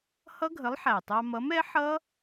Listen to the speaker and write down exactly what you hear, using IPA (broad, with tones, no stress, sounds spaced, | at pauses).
h ʌ˦˥ ɡʱ ə˨˥ lˠ ħ æ˨˩ tˤ ɑ˧ m ʌ˨˥ m ɛ˨˥ ħ ʌ˦˥